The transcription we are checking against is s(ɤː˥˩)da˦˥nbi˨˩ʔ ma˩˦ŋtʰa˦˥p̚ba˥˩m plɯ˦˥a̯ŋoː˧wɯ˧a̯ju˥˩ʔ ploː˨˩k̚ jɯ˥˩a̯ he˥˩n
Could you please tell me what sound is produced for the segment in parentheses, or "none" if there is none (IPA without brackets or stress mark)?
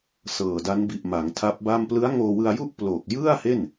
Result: ɤː˨˩